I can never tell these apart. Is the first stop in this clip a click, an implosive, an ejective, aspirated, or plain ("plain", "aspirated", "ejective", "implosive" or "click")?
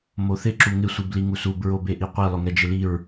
click